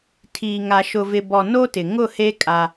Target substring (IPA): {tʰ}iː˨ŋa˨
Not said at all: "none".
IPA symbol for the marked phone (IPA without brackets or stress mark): tʰ